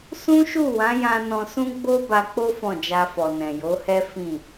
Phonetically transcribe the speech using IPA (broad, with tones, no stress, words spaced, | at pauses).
sũ˦ʃu˦˨wã˨˦jã˧ nɔ̃˧sũ˦ɡ͡bo˦ ba˧k͡po˦ fɔ̃˦˨d͡ʒa˧fɔ˨ nɛ̃˨jo˨˦hɛ˦ fĩ˦˨